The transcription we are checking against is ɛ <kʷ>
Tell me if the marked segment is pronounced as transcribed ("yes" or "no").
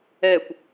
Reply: yes